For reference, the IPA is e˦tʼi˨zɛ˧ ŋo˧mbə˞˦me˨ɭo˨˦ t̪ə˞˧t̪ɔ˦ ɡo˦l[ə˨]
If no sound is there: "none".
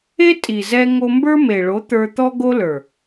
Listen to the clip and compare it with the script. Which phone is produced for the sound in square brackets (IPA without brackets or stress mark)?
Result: ə˞˨